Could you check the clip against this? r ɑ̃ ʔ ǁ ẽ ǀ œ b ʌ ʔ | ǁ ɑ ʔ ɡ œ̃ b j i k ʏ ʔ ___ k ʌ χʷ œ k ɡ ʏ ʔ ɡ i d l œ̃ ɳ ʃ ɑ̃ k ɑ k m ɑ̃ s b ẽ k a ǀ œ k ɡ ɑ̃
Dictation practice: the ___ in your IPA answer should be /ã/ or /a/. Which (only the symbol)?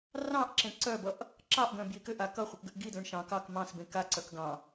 a